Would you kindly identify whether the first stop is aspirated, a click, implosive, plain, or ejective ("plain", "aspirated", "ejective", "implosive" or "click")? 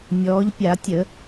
plain